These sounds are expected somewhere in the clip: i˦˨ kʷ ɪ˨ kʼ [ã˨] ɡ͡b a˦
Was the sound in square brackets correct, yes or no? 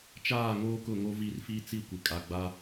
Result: no